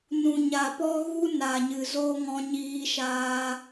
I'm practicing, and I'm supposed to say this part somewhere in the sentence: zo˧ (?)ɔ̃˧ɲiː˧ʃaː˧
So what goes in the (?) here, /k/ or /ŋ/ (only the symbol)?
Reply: ŋ